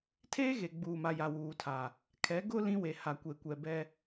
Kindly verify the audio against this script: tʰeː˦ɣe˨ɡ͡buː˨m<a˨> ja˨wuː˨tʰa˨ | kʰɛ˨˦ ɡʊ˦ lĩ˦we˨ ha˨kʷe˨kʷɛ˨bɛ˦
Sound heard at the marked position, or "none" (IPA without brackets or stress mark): a˨